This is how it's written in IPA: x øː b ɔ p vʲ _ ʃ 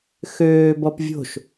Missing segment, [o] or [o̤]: o̤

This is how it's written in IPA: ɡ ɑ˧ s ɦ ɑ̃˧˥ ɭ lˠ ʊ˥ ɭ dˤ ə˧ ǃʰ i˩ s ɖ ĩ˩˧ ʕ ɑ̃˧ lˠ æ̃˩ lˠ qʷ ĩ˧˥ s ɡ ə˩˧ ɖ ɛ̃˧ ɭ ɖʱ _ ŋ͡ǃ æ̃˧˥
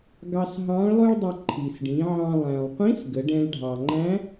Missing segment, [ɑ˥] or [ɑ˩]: ɑ˩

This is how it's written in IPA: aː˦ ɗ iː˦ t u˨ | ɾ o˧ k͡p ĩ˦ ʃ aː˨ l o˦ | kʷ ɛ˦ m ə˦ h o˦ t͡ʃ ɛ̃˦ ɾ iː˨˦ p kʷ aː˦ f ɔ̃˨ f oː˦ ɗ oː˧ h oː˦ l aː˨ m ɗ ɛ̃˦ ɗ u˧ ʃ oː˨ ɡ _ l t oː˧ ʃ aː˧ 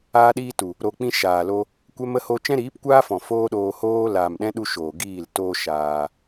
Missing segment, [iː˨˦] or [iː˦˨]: iː˦˨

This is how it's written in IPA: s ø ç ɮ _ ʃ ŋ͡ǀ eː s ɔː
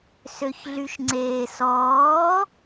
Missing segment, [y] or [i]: y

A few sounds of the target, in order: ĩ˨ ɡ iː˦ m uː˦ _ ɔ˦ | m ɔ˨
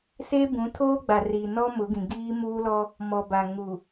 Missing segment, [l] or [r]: l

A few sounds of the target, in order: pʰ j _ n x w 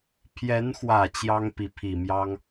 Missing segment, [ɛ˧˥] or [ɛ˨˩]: ɛ˧˥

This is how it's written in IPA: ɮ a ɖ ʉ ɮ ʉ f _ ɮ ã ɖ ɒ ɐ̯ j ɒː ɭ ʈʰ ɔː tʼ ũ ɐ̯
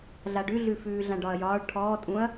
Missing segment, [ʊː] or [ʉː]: ʉː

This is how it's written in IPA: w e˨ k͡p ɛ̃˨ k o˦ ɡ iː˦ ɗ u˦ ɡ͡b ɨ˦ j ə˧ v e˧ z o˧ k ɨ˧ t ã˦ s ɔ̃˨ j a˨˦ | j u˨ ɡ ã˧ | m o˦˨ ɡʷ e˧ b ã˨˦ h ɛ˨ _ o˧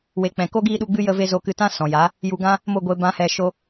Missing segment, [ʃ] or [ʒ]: ʃ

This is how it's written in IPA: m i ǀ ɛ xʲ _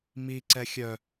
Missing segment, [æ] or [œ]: œ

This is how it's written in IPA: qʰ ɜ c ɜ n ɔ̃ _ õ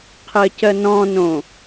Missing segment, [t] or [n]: n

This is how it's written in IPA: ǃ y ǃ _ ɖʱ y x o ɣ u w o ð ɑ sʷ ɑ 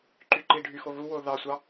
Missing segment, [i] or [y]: i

